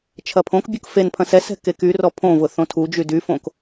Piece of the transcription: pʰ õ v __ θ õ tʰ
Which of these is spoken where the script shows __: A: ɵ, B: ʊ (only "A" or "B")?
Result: B